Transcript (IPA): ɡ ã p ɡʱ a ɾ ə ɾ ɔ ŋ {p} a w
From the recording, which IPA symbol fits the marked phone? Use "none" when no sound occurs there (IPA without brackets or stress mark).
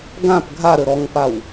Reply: p